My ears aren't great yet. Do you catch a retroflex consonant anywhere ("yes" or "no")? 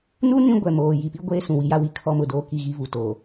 no